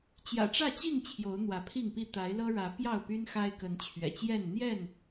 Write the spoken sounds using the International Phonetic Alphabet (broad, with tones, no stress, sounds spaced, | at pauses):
t͡ɕ j ä̰˨˩ ʈ͡ʂ ä˥˨ t͡ɕ i˥˨ ŋ t͡ɕʰ j o˨˦ ʊ̯ n̪ w ä˨˦ pʰ i˥˨ ŋ p i˥˨ t̪ a˨˦ ɪ̯ l ɤ˦ ɻ ä˨˦ p j ɑ˥˨ ʊ̯ p y˦ n x a˦ ɪ̯ k ə˨˦ n t͡ɕʰ ɥ ɛ̰˨˩ t͡ɕ j ɛ˥˨ n n̪ j ɛ˥˨ n